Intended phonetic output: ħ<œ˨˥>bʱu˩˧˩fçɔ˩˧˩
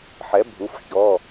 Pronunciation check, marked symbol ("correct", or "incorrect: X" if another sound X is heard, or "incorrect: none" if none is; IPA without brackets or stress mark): incorrect: ɛ˨˥